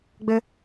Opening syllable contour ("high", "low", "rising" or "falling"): high